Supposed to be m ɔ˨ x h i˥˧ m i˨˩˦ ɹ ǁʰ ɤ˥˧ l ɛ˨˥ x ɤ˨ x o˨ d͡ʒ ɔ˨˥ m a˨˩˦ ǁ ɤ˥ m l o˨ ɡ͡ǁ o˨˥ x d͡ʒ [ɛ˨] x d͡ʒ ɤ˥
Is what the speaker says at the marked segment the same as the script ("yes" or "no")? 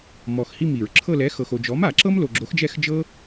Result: no